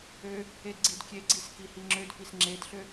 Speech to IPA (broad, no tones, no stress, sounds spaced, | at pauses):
ø | e d ɡ͡ǀ i d kʲ e ɡ͡ǀ i s k i h i ŋ͡ǁ ø d f i s ŋ͡ǁ e d ɬ ø